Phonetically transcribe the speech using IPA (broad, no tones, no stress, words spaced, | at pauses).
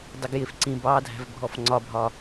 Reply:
dˤɪɡjɪfǀĩ bɑ dʱæ̤vbʱɔfŋ͡ǀɒbʱɒ